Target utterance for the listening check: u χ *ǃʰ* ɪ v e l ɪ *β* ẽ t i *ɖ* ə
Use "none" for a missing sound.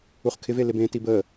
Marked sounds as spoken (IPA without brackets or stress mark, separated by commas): kʰ, b, b